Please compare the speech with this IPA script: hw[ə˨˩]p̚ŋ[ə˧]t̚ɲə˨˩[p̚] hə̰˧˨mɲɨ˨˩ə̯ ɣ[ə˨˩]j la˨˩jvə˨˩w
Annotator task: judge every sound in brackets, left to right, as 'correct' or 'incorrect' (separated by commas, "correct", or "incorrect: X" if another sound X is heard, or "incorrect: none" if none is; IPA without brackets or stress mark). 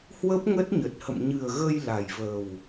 incorrect: ə˦˥, incorrect: ə˦˥, incorrect: t̚, incorrect: ə˧